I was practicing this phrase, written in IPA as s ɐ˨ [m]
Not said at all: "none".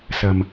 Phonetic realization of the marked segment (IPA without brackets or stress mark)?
m